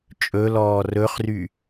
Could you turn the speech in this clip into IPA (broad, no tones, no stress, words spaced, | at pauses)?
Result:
t͡ʃʼɵlɔː rɵχry